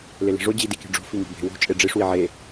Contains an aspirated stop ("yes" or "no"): no